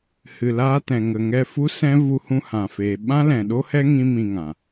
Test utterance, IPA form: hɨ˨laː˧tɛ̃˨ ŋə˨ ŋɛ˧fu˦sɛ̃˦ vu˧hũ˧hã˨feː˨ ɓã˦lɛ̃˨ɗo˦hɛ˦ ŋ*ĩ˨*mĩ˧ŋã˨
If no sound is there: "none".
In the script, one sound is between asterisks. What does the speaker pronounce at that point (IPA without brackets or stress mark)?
ĩ˦